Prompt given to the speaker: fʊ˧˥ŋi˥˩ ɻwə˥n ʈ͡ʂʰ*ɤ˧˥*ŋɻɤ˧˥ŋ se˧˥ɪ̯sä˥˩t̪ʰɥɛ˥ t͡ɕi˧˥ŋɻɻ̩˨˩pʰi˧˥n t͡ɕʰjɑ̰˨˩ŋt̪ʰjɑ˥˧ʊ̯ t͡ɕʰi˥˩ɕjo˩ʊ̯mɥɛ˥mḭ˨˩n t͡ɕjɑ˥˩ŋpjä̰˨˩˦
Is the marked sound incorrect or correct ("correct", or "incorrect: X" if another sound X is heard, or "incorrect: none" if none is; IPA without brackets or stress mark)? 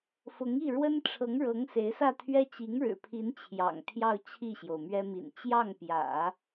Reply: correct